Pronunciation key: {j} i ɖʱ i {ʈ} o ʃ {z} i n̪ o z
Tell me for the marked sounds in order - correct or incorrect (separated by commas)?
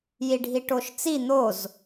correct, correct, incorrect